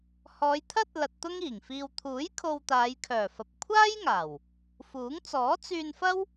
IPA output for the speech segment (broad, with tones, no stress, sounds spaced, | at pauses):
h ɔː˨˧ j t̪ʰ ɐ˥ t̚ l ɐ˧ t̚ t̪ ʊ˥ ŋ iː˨˩ ŋ f iː˧ w t̪ʰ uː˨˥ j kʰ o˧ w t̪ aː˨˧ j kʰ œː˨˩ f ɐ˨ p̚ kʷʰ aː˥ j ŋ aː˨˩ w | f uː˨˥ ŋ t͡s ɔː˨˥ t͡s yː˧ n f ɐ˥ w